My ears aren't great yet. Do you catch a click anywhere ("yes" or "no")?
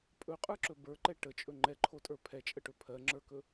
yes